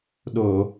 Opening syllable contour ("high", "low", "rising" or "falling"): low